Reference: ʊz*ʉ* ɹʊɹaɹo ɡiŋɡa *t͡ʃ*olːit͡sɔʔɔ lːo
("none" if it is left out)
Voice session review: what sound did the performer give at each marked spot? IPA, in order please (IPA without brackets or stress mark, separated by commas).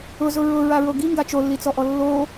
ʊ, t͡ʃ